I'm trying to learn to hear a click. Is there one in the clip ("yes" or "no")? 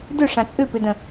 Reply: no